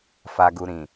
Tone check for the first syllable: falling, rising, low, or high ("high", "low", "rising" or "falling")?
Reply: low